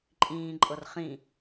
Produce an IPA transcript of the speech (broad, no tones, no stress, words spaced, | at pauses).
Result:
ǃʼĩːǃʼɤr χĩ